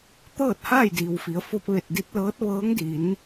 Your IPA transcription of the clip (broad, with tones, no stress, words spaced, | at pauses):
t̪ɤː˥˨t̚haː˥˨jdiː˩w fi˩˧ə̯fo˧p̚ʋe˧˩t̚di˧t̚ lɤː˧˥t̚ʋɤː˧˥ŋdi˩˧n